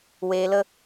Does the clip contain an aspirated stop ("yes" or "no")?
no